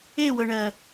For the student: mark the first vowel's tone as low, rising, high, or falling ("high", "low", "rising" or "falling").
falling